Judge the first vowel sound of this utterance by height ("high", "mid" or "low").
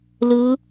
high